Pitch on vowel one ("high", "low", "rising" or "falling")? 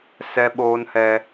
high